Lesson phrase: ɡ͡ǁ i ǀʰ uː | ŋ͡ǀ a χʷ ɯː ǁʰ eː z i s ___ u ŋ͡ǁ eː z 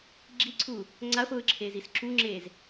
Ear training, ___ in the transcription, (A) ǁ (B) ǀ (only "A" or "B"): A